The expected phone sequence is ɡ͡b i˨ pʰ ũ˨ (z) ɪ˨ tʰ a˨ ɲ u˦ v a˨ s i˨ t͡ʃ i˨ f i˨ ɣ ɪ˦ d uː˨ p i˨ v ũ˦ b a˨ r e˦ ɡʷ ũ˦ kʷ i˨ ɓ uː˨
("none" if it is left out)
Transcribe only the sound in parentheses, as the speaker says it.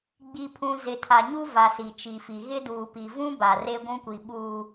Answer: z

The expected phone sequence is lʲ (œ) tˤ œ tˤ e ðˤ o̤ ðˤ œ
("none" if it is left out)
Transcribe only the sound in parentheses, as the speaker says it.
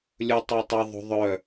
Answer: ɵ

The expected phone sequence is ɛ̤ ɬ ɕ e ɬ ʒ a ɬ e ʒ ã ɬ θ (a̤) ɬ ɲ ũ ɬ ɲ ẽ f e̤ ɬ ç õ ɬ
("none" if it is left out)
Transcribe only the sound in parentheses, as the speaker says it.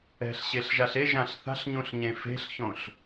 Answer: a̤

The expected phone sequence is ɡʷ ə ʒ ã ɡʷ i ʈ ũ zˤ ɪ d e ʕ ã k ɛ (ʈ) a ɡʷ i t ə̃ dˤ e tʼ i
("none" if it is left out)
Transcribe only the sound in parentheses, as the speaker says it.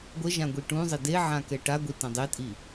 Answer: ʈ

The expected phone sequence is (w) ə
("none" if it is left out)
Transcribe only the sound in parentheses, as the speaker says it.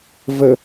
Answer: v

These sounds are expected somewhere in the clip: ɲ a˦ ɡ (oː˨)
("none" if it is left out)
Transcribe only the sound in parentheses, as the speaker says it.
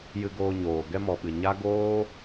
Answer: oː˦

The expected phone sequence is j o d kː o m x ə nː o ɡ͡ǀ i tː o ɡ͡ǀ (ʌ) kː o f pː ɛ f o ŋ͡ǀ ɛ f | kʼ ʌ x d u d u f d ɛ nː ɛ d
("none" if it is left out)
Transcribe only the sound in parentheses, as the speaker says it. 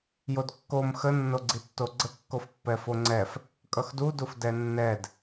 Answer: ə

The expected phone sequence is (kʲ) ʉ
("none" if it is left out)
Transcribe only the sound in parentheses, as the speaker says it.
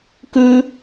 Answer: k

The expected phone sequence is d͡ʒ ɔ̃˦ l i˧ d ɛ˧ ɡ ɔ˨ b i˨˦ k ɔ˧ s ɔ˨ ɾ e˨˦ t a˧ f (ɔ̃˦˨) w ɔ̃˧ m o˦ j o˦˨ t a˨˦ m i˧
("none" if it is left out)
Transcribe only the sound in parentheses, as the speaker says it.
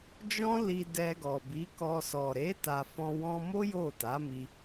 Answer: ɔ̃˧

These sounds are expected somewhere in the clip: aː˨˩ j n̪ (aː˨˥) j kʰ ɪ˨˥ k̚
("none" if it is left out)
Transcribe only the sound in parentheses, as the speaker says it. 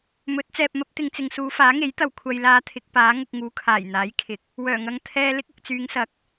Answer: aː˨˥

